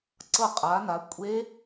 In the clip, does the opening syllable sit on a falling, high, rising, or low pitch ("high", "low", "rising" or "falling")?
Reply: falling